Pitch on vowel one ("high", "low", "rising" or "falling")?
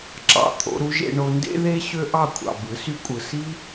low